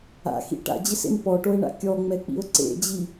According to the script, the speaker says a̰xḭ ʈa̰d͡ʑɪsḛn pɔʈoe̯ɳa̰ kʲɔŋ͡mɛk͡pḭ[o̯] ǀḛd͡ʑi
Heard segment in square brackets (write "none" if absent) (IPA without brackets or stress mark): o̯